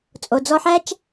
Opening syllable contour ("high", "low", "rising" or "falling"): low